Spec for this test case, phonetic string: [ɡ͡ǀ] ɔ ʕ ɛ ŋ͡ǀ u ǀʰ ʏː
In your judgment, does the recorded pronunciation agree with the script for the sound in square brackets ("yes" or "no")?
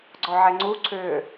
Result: yes